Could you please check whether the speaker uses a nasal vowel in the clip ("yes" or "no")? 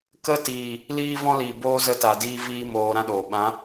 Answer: yes